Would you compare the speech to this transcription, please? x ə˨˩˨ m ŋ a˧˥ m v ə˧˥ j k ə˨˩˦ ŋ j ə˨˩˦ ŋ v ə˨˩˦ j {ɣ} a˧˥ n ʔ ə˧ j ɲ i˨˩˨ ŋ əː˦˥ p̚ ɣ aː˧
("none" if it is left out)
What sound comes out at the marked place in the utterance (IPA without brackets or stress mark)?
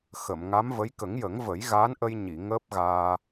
ɣ